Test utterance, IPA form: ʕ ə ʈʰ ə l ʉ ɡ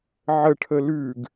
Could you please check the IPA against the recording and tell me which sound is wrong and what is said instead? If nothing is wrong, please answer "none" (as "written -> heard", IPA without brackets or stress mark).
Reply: none